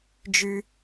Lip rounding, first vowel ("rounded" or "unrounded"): rounded